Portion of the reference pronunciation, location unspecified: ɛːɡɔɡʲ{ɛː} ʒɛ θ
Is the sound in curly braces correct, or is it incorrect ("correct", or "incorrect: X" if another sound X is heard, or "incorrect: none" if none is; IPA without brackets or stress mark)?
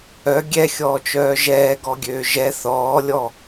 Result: incorrect: øː